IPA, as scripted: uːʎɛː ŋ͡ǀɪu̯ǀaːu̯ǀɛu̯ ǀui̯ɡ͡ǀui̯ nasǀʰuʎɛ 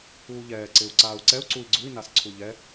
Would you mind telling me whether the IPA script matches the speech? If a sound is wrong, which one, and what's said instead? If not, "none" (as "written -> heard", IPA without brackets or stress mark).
ŋ͡ǀ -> ǀ